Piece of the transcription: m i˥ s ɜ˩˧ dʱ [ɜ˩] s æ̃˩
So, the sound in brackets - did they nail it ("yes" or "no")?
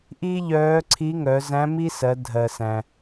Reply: yes